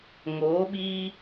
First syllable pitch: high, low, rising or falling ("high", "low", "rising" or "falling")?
rising